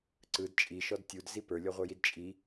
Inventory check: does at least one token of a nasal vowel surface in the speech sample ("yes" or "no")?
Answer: no